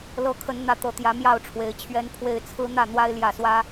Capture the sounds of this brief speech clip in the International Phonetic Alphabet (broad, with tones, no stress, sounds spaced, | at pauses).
l ɤ˨˦ kʰ ə˨˦ n n̪ ä˨˦ t̪ ɤ˨˩ t̪ j ä˨˦ m j ɑ˥˨ ʊ̯ ʈ͡ʂʰ w e˨˦ ɪ̯ t͡ɕʰ ɥ ɛ˦ n pʰ w e˦ ɪ̯ t͡sʰ ɹ̩˦ n̪ ä˥˨ n̪ w a˦ ɪ̯ l j ä˥˨ s w ä˦